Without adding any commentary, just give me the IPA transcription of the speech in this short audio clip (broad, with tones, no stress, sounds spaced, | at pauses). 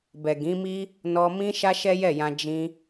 b ɛ˨ ɡ ĩ˨˦ m i˦ | n ɔ˧ m ĩ˦ ʃ a˦ ʃ ɛ˦ j ɛ˦˨ j ã˧ d͡ʒ ĩ˧